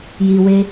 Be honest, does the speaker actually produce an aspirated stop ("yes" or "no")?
no